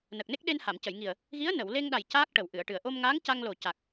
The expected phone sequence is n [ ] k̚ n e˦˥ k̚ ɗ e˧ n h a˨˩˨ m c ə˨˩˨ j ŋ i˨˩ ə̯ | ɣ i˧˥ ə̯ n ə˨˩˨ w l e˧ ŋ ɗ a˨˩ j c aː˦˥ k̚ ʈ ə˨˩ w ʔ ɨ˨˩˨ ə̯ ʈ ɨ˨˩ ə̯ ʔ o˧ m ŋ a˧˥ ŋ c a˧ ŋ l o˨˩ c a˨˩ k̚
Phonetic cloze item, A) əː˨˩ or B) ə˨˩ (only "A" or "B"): B